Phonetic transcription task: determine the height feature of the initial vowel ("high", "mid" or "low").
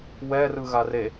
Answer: mid